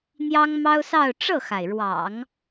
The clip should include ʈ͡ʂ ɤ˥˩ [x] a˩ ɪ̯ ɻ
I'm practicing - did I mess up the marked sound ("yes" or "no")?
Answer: no